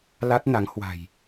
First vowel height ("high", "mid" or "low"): low